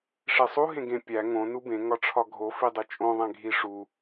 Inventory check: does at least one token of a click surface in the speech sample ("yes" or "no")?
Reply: no